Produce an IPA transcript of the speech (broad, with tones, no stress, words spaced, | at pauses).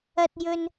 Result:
ɐ˥t̚jɵ˥n